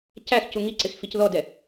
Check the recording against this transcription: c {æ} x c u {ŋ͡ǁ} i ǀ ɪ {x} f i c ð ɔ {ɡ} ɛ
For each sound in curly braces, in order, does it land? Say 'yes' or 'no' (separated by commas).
yes, no, yes, no